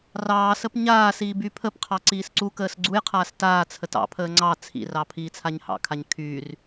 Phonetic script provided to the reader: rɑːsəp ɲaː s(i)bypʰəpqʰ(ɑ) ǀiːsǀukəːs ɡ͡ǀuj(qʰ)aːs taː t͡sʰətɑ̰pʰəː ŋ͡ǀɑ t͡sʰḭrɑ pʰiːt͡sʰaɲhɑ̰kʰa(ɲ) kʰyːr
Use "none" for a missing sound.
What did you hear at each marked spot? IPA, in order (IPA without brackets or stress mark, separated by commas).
iː, ɑ, qʰ, ɲ